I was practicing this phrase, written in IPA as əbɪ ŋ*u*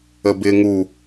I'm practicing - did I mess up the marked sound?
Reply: no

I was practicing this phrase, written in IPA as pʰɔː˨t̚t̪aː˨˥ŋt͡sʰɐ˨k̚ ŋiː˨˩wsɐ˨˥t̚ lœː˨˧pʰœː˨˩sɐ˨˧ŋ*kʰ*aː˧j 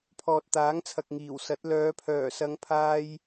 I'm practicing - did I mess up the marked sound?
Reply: yes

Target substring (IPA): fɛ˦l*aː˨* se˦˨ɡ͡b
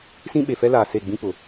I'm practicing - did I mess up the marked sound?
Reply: no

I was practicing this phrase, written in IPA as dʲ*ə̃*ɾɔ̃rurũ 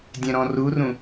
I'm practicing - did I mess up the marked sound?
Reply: yes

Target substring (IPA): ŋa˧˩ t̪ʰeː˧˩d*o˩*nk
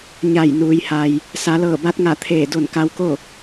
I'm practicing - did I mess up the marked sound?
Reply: yes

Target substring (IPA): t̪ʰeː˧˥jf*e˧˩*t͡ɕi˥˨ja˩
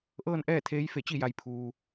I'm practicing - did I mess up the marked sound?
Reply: no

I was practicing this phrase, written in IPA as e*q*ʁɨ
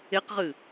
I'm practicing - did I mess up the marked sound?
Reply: no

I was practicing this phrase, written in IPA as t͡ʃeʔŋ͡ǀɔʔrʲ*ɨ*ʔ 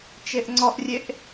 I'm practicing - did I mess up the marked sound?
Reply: yes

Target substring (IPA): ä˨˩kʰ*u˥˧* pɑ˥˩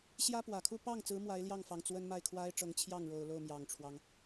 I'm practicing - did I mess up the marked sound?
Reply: no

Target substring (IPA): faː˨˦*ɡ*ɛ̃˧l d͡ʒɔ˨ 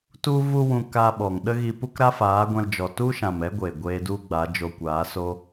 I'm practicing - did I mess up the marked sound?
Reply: yes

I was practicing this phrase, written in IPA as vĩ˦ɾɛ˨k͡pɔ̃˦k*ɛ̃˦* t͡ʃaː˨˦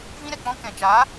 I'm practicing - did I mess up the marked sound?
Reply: yes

